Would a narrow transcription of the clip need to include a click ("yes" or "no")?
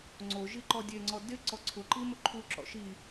yes